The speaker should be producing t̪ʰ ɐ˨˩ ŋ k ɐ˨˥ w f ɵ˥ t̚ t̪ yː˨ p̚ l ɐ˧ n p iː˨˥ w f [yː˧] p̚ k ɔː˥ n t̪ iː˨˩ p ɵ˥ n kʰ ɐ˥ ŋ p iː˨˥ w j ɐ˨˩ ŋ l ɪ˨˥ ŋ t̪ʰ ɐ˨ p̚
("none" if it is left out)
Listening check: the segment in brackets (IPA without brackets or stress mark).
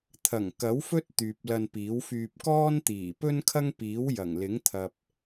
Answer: yː˧